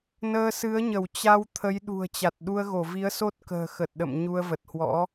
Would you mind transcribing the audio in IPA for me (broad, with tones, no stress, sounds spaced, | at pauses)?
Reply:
n əː˧ s ɨ˨˦ ə̯ ɲ ə˧˩ w t͡ɕ a˧ w t̪ʰ ə˨˦ j ɗ ṳ˨˩ ə̯ t͡ɕ a˨˩ t̚ ɗ u˧ ə̯ ɣ o˧˩ v i˨˦ ə̯ s o˦˥ t̚ k ə̤ː˨˩ x ə˨˩ t̚ ɗ ə̰˧˨ m ɲ u˧ ə̯ v ə˨˩ t̚ h w ɔ̰˧˥